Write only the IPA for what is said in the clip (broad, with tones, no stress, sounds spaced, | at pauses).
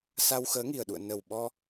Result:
s a˧ w x əː˨˦ ŋ i˨˩ ə̯ ɗ ṵ˧˨ ə̯ n ə˨˩ w ɓ ɔ˧